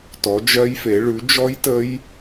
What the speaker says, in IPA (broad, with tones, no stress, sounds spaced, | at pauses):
t ɔ˨˦ d͡ʒ ɜ˦˥ j f e˨˦ ɭ ʉ˨˦ d͡ʒ ɔ˦˥ j t ə˦˥ j